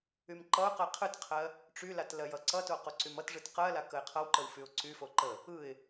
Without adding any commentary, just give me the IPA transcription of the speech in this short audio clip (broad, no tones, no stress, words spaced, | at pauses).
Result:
ymǃʌʊ̯qəɪ̯ qʰɯtqʰɜ | ʈ͡ʂylat lɜjʌǀʌto qoǀymʌtʐɯt qɜla kəɪ̯qʰʌwǃəw fyʊ̯ǀyfo ǃə | ɯɪ̯